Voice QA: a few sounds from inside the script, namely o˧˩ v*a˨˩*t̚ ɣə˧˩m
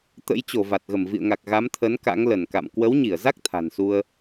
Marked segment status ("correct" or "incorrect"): correct